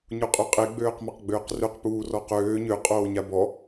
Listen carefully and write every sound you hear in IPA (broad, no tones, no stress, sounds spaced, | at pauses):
ɲ u qʼ ø qʼ e ɡ͡b øː q m a q ɡ͡b øː q r ø q p uː r ɔ q øː ɲ ø qʼ oː ɲ a b ɔ